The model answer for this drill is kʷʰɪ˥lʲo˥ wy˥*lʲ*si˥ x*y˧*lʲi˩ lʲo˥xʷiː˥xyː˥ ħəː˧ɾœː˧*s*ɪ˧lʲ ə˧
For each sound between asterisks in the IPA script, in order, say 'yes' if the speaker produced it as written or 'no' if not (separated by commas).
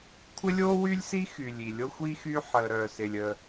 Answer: yes, no, yes